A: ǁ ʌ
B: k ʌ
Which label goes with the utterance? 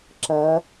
A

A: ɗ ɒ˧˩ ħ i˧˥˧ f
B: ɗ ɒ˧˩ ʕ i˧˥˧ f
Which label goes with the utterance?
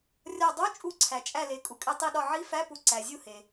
B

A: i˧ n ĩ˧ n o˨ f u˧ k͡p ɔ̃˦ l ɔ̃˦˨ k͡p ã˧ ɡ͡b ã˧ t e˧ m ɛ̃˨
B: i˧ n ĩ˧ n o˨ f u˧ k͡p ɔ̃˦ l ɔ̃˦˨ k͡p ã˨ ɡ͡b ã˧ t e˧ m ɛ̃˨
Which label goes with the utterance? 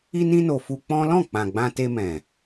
B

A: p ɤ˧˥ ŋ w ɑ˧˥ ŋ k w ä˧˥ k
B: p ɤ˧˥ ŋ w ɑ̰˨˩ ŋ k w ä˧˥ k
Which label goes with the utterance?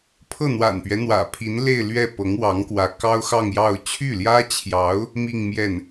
A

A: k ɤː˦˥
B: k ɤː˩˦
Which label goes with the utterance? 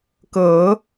B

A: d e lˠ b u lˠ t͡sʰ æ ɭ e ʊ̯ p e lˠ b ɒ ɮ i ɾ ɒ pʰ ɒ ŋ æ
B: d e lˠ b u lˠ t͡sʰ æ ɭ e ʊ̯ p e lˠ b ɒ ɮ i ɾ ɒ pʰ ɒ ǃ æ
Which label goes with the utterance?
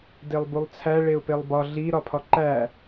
B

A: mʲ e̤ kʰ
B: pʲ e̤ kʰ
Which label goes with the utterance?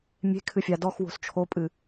A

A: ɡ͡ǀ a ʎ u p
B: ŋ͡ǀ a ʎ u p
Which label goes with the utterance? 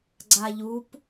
A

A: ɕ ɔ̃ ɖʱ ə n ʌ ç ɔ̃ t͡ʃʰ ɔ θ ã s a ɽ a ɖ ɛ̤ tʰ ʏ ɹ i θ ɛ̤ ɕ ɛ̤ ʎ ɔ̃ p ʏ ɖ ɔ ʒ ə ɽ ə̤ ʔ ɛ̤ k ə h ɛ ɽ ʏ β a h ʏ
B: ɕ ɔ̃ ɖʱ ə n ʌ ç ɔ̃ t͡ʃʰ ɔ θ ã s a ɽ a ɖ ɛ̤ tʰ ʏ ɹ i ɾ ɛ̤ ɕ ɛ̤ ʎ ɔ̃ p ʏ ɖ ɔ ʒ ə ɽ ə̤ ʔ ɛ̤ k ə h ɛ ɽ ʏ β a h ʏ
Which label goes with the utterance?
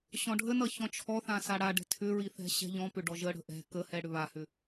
A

